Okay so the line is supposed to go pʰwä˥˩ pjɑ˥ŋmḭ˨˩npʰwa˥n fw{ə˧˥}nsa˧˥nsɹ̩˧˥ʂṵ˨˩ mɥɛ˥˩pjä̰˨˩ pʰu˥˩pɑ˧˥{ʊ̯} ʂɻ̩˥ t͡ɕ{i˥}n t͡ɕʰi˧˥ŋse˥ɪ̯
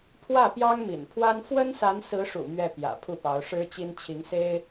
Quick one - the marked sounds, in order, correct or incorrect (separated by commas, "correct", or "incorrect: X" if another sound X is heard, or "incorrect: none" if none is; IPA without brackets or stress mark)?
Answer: incorrect: ə˥, correct, correct